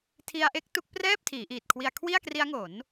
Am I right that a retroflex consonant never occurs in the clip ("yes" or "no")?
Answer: yes